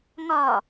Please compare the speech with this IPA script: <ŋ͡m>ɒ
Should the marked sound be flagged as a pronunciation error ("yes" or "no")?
yes